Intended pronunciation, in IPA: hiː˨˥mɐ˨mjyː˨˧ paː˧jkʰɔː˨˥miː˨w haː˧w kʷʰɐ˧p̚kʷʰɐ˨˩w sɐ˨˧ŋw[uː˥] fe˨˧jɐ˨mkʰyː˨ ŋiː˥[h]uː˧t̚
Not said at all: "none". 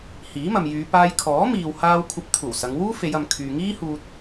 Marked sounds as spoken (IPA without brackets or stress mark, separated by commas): uː˥, h